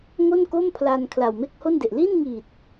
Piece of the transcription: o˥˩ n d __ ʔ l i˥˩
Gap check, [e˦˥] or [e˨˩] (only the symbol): e˨˩